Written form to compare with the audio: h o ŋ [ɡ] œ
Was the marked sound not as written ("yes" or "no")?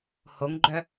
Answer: yes